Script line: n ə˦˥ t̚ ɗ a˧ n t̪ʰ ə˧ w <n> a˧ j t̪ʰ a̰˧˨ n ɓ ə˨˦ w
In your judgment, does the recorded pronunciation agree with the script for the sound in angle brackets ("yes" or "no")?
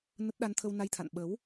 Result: yes